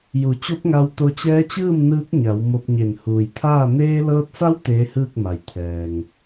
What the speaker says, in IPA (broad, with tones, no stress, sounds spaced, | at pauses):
j u˩˧ t͡ɕ o˧˥ p̚ ŋ a˧ w t̪ o˧ t͡ɕ ɛː˧˥ t͡ɕ ɯː˥˨ m n ɯː˧˥ k̚ ɲ a˩˧ w m o˧ p̚ ɲ e˧˩ n h uː˩ j t̪ʰ aː˥˨ n eː˧ l ɤː˧ t̚ s a˧˥ w t̪ eː˧˥ h ɯː˥˨ k̚ m a˩ j t̪ʰ ɛː˩ ŋ